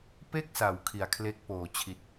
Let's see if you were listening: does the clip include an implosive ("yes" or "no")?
no